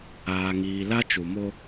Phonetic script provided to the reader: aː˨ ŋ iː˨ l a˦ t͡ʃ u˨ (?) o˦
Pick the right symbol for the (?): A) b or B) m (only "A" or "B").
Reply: B